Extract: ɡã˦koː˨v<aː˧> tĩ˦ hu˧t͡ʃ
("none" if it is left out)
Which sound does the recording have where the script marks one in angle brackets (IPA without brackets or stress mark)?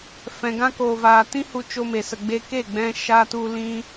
aː˨